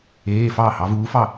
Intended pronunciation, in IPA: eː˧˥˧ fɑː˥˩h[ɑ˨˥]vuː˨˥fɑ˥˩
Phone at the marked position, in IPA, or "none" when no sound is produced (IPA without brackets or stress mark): ɑ˨˥